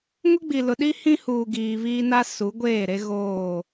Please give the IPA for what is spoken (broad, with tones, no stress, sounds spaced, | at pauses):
ŋ ʊ˦ ɡ͡b i˨ l ʊ˨ ɗ i˦ h ĩ˦ h uː˨ ɡ iː˨ β iː˦ n a˦ s u˨˦ ɡʷ eː˦˨ ɾ e˦ ɣ oː˦˨